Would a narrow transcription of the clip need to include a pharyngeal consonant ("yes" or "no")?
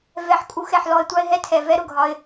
yes